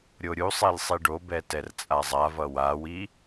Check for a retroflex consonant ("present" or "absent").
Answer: present